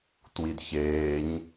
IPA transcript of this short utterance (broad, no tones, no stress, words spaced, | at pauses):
twidçeːɲ